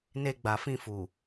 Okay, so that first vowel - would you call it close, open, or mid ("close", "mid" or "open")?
mid